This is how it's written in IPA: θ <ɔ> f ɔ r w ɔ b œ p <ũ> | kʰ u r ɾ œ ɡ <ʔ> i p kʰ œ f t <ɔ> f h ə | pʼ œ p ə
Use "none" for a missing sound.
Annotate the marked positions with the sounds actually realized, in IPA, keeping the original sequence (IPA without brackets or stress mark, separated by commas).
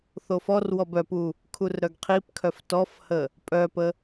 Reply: o, u, qʰ, ɔ